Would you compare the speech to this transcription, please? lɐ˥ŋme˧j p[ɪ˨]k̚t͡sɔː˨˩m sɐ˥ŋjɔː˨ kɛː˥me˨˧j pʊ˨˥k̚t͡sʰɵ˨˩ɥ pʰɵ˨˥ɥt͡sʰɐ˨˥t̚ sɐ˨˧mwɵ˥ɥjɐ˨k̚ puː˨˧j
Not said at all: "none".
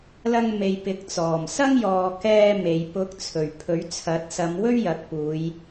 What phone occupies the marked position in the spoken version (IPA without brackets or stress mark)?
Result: ɪ˨˥